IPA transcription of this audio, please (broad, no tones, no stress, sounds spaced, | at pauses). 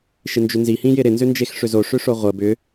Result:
ʃ ɪ n d͡ʒ ʏ n z i h ĩ j ɪ ɾ ɪ n z ʏ n d͡ʒ e x ʂ ʏ z o ʂ ʏ ʂ o ʁʷ ə b ʏ